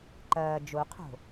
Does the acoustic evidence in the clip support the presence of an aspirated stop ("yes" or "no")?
yes